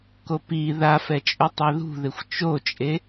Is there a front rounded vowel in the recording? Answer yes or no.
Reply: no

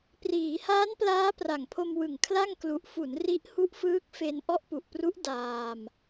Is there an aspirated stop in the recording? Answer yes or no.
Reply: yes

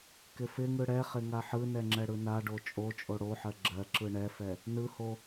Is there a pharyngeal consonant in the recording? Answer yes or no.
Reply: yes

